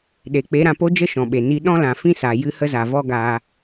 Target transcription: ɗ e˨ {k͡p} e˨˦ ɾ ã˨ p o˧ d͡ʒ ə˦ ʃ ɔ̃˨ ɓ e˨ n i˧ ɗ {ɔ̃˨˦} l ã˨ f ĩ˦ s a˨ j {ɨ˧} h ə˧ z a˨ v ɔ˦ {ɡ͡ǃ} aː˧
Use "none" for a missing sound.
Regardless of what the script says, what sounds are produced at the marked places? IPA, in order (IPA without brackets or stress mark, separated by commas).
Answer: k͡p, ɔ̃˦, ɨ˧, ɡ